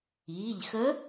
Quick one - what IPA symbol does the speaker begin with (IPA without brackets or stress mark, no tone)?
iː